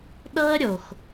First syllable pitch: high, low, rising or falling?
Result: high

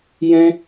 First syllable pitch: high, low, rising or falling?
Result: high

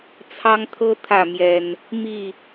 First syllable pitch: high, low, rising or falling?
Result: high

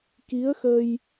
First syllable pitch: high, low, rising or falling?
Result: rising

